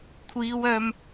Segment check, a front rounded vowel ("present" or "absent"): present